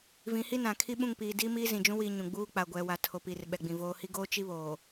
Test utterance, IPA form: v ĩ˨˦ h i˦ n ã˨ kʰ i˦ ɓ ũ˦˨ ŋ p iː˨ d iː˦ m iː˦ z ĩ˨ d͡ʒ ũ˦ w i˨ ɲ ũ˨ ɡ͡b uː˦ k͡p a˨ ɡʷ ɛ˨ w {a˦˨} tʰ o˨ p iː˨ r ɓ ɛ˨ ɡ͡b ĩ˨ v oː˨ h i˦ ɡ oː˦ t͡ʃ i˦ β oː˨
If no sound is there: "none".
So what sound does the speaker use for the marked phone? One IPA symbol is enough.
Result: a˨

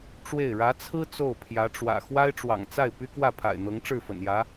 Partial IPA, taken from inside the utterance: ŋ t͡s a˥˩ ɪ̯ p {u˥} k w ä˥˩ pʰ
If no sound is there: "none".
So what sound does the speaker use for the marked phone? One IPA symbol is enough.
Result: y˥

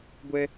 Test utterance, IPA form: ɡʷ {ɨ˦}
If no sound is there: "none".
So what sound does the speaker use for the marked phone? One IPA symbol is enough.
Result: ɛ˦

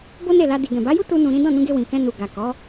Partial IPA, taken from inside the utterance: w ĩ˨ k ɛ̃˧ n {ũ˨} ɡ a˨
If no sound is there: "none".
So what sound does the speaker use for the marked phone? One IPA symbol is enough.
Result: u˨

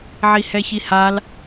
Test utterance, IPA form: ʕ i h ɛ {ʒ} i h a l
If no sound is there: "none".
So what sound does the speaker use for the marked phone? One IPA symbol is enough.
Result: ç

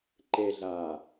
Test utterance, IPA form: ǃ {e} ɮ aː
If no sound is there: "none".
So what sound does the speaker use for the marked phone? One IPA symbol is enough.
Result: e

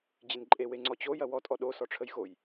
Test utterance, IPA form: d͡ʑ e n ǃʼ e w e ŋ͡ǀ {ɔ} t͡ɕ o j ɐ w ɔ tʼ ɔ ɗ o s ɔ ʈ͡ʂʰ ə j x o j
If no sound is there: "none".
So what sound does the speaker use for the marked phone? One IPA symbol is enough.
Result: ɔ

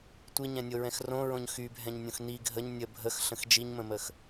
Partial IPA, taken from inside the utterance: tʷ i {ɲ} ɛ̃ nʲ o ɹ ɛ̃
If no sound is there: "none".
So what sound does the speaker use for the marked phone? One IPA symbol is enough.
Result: ɲ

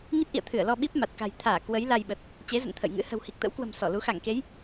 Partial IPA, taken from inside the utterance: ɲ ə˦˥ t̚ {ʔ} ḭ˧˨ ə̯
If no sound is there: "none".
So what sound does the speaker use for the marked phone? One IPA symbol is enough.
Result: ʔ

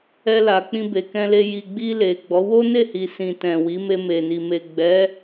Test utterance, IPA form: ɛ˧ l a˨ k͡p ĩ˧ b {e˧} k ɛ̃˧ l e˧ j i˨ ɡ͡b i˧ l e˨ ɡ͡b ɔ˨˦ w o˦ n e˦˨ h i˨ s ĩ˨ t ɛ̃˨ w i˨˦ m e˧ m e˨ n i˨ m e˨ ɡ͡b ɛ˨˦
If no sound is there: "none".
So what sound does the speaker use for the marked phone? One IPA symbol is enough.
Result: e˨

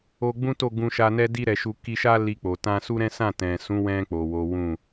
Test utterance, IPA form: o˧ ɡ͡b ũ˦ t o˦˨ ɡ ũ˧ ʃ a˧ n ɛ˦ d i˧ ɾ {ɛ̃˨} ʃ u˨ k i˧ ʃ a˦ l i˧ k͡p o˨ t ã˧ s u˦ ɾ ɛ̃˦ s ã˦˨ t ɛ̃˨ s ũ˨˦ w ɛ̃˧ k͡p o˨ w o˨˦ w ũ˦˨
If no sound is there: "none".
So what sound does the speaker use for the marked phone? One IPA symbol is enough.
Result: ɛ˨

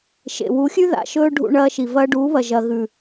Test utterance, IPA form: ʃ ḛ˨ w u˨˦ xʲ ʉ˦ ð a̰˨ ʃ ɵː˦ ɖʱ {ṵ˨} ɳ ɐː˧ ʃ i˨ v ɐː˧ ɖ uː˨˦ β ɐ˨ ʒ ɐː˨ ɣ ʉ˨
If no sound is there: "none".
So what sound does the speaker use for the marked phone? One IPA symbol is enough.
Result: ṵ˧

